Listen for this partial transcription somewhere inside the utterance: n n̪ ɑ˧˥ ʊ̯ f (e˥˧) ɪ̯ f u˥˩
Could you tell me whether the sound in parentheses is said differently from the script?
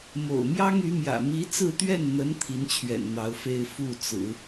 no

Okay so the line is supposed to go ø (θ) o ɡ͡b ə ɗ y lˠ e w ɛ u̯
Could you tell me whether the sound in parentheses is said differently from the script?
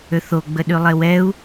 no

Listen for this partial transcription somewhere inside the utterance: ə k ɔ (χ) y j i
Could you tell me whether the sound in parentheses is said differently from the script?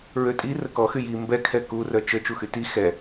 yes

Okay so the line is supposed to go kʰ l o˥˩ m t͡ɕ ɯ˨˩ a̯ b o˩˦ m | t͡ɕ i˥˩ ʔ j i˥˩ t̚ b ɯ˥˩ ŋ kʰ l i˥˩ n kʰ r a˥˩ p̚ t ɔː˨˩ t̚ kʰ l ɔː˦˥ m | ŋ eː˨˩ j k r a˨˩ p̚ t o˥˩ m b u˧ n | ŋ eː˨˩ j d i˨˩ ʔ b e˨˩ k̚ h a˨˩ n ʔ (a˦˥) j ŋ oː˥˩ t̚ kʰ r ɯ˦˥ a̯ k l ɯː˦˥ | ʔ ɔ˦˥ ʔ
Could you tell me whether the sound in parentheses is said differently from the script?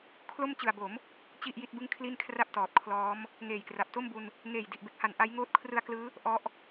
no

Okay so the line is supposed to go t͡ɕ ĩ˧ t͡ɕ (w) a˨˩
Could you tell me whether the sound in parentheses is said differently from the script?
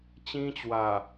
no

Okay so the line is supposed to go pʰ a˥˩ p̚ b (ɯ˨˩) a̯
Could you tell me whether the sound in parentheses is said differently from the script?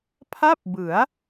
yes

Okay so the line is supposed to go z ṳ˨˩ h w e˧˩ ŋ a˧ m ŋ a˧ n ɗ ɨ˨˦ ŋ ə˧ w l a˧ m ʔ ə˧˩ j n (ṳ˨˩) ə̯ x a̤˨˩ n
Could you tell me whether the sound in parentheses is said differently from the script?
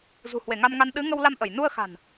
yes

